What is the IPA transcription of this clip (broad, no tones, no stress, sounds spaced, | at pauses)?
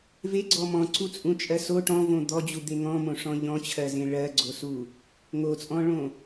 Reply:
v e ɡ͡ǀ ɔ m ɔ̃ ǀ u t͡sʼ ũ t͡ʃʼ ɜ s o ʈ ɔ̃ v õ d̪ ɔ d͡ʑ u d̪ e ŋ ɔ̃ m õ ʂ ɔ̃ ʎ ɔ̃ t͡ɕʰ ɜ z ẽ ɭ ɜ ɡ͡ǀ o s u | ŋ o t͡sʼ ɔ̃ ɭ õ